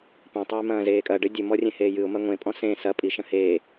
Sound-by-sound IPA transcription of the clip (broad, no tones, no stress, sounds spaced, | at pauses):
p ẽ tˤ eː m ɐ̃ː z eː kʼ ɐ ɖ ɘ dʲ ɘ m ɔ rʲ ẽ h eː j ɨ ʊ̯ m ɐ ŋʷ ẽ pʼ ɔ̃ s ẽ s ɐ pʼ i ʃ ɐ̃ h eː